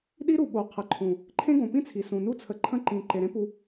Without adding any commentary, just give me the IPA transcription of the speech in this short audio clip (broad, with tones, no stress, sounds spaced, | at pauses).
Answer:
ɗ i˦ ɾ u˨ ɓ o˨ qʰ ə˨ ǃʰ ũ˨ | ǃʰ ẽ˦ ɡ õ˨ p ĩ˦ t͡sʰ i˨ s ũ˨ n u˦ t͡sʰ ə˨ ǃʰ ə̃˧ ǃ ĩ˨ ǃ e˨ ɾ ẽ˦ p u˧